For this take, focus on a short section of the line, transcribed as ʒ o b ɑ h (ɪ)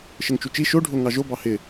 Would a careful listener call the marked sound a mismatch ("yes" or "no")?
no